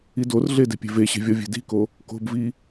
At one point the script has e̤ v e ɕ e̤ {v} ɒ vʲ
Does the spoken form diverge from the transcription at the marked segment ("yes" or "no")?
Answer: yes